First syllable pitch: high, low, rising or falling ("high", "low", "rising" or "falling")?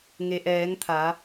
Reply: low